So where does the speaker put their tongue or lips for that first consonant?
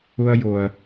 palate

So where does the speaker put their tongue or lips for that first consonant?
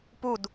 lips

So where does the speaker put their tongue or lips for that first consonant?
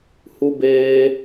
throat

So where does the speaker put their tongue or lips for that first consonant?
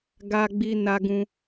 velum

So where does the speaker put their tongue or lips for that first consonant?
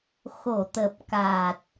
velum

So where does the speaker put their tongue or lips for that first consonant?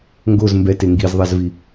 velum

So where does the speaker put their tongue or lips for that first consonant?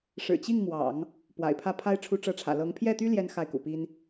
retroflex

